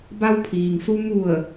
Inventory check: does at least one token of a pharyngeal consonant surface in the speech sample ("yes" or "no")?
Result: no